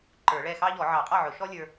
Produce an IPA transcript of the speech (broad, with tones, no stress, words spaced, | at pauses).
ǃə˞˨˩˦ɭɛ˥˩xɑ˥ ʎɔ˨˩˦ʕɑ˨˩˦ qʼɑ˥˩ʕʊ˨˩˦ʃɔ˥ lʲə˞˥